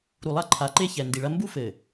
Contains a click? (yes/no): yes